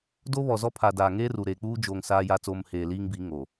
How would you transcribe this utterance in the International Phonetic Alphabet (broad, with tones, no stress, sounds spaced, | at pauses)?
d o˦ β ɔ˨ z ɔ˦ pʰ a˨ d aː˨ ŋ eː˦ r u˨ ɾ eː˨ k͡p uː˦ d͡ʒ oː˨ ŋ s aː˦ j a˦ t͡s oː˦ m h eː˨ l iː˦ ŋ b iː˨˦ ŋ o˨